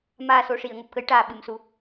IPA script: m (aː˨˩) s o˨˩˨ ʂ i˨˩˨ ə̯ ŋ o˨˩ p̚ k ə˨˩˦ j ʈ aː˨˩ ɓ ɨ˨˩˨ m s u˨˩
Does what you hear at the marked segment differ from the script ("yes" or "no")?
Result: no